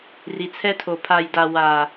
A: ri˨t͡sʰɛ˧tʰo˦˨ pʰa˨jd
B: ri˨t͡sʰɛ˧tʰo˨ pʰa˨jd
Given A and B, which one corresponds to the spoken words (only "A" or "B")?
B